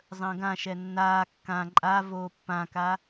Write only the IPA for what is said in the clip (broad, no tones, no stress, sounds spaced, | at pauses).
zˤ ə̃ː ɡ ã ʃ ɛ nː aː kː ã ǃʼ a v oː pː ã k a